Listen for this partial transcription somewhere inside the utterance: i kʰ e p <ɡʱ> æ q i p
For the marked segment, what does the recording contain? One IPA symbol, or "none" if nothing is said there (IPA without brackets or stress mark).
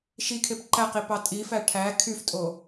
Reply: ǃ